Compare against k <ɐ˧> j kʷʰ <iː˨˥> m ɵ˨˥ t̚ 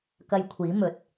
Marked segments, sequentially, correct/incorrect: correct, correct

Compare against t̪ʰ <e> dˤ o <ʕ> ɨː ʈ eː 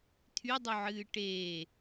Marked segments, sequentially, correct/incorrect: incorrect, correct

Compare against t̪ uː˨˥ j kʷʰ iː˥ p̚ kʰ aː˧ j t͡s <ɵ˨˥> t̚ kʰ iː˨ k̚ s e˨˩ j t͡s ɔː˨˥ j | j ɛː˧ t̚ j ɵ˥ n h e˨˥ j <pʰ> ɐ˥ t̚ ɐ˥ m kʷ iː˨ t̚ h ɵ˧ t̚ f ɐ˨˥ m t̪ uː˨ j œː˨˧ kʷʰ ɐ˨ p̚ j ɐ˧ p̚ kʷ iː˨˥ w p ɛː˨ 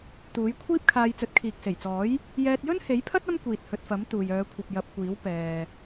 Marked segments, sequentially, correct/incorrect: correct, correct

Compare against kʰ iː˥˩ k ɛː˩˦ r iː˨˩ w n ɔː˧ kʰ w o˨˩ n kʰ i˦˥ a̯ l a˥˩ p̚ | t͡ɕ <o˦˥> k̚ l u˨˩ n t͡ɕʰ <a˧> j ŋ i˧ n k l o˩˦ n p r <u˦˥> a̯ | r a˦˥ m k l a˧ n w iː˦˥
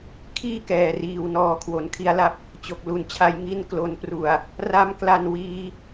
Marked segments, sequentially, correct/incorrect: incorrect, correct, incorrect

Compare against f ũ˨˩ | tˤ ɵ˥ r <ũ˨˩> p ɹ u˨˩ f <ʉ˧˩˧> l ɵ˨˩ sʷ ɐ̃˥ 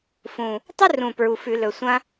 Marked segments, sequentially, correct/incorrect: correct, correct

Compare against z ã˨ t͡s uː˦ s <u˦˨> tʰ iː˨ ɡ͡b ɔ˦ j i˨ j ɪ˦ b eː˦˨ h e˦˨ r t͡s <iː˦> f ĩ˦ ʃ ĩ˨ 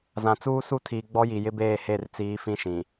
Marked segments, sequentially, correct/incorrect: correct, incorrect

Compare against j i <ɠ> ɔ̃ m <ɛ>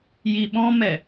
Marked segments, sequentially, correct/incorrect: incorrect, correct

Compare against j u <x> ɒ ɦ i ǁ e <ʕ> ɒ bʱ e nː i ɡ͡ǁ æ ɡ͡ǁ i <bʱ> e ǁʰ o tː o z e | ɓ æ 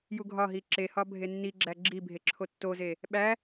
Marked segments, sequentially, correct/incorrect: incorrect, incorrect, correct

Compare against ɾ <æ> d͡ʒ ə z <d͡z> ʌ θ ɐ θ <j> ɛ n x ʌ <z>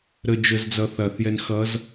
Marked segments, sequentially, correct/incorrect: incorrect, correct, correct, correct

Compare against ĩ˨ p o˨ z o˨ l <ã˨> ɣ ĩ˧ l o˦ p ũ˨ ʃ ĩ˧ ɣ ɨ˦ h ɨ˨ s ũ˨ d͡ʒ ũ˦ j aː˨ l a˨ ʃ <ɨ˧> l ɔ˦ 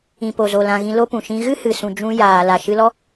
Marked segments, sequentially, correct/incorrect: correct, correct

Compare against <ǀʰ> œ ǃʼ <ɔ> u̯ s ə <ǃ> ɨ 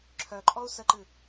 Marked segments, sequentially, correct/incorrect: incorrect, correct, correct

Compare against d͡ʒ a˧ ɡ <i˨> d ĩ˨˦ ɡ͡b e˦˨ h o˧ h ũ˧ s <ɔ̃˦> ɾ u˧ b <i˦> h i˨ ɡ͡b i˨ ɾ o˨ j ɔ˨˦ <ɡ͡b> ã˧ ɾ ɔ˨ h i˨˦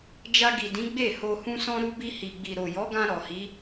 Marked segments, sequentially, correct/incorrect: correct, incorrect, incorrect, incorrect

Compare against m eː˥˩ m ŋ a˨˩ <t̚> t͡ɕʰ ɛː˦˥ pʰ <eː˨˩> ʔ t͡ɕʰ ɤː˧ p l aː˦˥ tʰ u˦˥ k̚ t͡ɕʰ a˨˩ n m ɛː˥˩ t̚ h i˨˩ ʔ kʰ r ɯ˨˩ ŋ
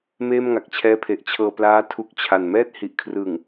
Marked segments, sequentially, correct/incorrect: incorrect, incorrect

